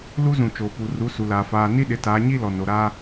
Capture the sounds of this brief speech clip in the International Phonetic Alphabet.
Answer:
lu˦zũ˨t͡ʃoː˨pu˨ ru˨˦su˨laː˨ faː˨ ni˦ɗɪ˨˦taː˨˦ ɲi˦lɔ˨no˨ ɾa˦

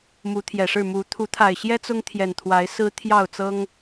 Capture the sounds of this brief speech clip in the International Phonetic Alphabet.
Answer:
mu˨˦t̪ʰjɛ˨˩ʂɻ̩˥˨ mu˨˦ t̪ʰu˨˦t̪ʰa˨˩ɪ̯ɕjɛ˦ t͡sʊ˦ŋt̪ʰjɛ˨˩nt̪ʰwa˨˦ɪ̯ sɹ̩˦t̪ʰjɑ˥˨ʊ̯t͡sɤ˦ŋ

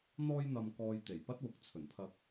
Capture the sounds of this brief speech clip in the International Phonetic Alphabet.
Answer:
n̪ɔː˥jn̪ɐ˧mkɔː˧j t̪e˨˩jpɐ˥t̚wʊ˨k̚ t͡sʰɵ˨˩npʰɐ˧k̚

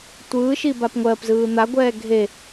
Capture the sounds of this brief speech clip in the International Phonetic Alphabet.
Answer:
tʷɯːʃibap ŋʷɜpzɯː n̪aɡʷɛː ɡʱe

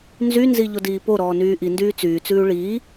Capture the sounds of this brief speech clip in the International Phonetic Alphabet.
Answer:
nzynzi ʎodiːpoɾɔː nyːʔindyː t͡syːt͡sʉː ɭiː

